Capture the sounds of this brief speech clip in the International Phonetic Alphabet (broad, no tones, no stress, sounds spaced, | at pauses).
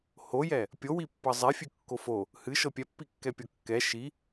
h o j ɛ | pʲ o w i pː ɤ zˤ e fʲ ʉ kː o f o | h ɨ ʃ ɤ pʲ ɛ pː i kː ɛ pʲ ɤ kː ɛ ʃ i